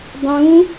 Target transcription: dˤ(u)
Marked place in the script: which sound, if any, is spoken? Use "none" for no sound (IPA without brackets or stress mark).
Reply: ũ